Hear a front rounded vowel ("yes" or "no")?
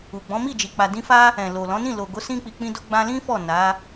no